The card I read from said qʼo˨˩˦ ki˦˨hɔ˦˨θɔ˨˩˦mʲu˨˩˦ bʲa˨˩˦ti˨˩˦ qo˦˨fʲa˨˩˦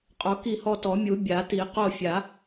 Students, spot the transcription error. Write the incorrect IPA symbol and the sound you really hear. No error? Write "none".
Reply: θ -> t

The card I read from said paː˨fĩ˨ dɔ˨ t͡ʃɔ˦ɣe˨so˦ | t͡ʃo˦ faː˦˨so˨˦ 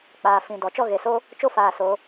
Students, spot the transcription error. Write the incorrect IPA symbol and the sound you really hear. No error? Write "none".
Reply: p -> k͡p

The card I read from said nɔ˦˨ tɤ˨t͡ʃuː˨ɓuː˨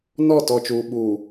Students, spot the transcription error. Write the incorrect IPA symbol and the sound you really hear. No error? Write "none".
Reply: ɤ˨ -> ɔ˨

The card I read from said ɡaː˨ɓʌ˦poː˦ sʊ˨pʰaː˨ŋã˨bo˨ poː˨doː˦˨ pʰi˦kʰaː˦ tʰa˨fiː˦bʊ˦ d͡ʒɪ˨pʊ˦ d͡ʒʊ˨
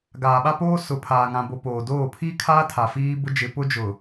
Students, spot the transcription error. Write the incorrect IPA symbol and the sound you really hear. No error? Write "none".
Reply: ʌ˦ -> a˦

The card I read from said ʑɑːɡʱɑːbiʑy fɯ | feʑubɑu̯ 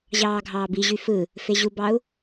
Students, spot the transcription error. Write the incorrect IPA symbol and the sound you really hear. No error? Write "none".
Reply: none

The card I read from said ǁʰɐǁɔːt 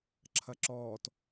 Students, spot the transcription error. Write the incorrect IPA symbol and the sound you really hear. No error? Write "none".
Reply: none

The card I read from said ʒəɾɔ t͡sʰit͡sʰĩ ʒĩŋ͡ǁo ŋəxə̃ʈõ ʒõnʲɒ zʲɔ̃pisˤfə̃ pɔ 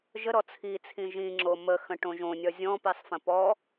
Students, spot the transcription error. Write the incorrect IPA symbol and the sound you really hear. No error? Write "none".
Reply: ŋ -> m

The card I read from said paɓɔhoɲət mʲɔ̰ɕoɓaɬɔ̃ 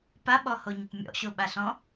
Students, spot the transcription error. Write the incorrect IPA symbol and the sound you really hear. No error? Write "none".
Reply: none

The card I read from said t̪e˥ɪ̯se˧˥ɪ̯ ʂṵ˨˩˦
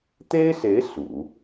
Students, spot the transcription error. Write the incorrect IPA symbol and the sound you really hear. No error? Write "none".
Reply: ʂ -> s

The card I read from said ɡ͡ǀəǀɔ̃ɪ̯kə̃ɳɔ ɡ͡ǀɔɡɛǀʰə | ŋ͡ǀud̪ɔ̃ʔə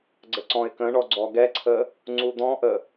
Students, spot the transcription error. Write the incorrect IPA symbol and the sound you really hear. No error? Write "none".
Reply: none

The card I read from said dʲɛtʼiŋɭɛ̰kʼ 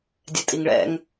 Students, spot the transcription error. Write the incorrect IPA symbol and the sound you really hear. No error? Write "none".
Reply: kʼ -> ŋ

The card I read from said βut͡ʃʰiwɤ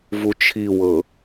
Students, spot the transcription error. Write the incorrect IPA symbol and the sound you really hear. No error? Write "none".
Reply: β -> v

